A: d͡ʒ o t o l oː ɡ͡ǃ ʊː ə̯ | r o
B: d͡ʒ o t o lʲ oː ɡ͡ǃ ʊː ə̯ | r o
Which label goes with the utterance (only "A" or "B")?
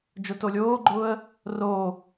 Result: B